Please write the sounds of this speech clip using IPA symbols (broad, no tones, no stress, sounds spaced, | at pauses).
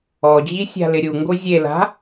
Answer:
ɔ d͡ʑ i sʲ a̤ l ɪ ɾʲ u ŋ ɡ o zʲ e l a̤